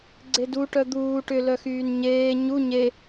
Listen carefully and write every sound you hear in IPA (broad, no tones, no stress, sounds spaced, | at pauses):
ɡ͡ǀ e d u ʈ œ d̪ uː ʈ ʏ l œ x yː n ɲ eː ɲ u ɲ e